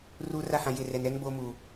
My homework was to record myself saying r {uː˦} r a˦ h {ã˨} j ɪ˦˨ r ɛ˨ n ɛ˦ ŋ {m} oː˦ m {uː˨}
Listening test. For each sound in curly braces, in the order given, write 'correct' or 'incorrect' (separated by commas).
correct, correct, incorrect, correct